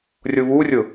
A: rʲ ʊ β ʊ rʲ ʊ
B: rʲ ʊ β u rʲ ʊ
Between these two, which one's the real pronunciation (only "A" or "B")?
B